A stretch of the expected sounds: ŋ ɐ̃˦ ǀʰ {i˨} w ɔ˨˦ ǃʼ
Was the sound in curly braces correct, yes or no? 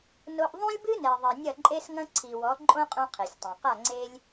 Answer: yes